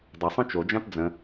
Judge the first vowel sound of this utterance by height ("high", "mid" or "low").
mid